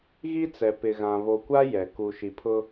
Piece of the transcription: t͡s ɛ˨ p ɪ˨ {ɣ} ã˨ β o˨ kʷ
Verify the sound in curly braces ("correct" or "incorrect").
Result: correct